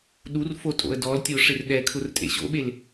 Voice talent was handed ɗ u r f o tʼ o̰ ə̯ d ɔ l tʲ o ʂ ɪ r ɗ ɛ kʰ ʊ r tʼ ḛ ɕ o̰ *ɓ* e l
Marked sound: correct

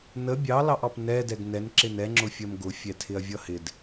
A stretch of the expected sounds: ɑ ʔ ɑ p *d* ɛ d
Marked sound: incorrect: n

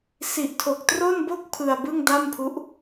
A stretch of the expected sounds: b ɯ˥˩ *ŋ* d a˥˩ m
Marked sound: correct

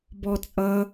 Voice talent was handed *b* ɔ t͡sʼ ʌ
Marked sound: correct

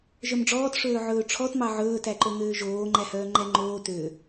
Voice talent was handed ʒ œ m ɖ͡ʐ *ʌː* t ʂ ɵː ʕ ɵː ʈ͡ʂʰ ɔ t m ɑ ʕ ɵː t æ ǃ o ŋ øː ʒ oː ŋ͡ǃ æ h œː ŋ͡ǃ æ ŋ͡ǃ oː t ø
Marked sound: incorrect: ɔː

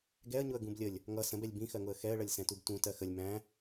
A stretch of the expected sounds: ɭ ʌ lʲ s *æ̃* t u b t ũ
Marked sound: incorrect: ɛ̃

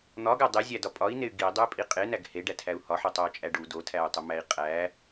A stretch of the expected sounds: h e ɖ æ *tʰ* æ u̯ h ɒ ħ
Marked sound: correct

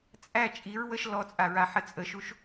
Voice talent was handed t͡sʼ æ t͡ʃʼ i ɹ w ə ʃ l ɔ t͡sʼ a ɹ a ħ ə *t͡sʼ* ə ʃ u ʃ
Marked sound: correct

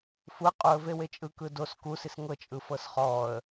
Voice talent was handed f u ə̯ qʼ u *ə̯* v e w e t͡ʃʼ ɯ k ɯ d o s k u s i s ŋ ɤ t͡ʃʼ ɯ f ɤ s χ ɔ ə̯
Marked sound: correct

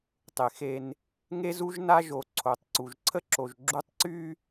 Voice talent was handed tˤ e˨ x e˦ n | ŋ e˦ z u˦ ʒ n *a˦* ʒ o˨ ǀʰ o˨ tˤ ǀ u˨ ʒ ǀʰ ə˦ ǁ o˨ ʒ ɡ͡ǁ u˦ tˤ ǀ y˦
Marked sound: correct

